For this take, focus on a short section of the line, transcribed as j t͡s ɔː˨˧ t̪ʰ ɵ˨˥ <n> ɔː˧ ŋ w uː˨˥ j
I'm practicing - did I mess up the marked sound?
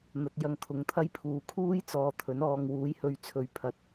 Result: no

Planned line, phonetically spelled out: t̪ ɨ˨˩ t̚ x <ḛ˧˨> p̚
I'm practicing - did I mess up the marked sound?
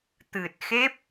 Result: yes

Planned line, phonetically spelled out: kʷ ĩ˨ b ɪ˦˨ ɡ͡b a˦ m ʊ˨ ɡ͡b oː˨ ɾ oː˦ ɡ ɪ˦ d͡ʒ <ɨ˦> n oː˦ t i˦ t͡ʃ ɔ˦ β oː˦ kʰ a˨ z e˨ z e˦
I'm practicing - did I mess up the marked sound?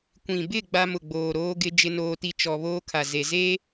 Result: yes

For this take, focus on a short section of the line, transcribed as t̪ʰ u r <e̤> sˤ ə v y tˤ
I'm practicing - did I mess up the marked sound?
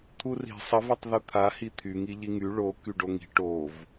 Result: yes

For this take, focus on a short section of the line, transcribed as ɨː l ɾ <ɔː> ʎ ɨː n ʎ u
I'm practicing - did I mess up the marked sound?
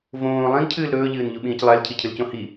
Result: yes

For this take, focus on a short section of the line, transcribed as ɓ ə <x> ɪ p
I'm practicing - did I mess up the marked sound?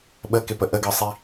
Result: yes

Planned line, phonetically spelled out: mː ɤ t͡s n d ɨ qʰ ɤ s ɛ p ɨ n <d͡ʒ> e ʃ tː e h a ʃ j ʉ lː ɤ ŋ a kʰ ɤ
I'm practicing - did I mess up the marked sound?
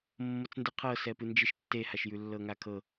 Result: no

